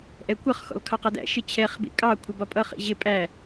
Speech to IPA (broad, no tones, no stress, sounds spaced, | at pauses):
ʔ ɛ kʷ ʌ χ x ɔ̰ l kʰ ɑ q ɑ d æ̰ ʃ ɪ t͡ɕʰ ɛ χ b ḭ kʼ ɑ kʷʰ ɪ b ɒ pʼ ʌ χ ḭ ʑ ɪ pʼ æ